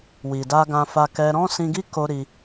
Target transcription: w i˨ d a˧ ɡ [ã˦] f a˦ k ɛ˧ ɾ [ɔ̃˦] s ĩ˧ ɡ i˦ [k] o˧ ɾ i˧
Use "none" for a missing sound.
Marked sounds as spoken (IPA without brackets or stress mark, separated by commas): ã˧, ɔ̃˦, k